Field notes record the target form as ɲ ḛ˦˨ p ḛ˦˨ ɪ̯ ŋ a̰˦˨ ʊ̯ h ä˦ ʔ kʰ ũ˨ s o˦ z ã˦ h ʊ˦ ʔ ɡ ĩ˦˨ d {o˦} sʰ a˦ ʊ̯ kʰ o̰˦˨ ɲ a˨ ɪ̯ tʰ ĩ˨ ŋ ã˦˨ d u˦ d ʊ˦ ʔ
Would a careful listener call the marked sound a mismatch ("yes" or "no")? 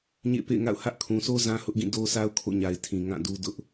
no